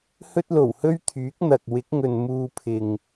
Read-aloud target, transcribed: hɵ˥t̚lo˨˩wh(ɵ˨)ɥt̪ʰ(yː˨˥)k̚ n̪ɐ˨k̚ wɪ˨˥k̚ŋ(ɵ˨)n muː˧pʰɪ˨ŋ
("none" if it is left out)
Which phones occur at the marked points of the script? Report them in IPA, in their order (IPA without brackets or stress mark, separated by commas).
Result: ɵ˥, yː˨˥, ɵ˨